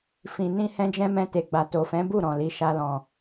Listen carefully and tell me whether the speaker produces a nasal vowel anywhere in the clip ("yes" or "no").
yes